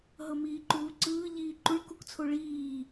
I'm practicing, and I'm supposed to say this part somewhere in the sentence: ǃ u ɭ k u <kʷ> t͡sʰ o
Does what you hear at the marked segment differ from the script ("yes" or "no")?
yes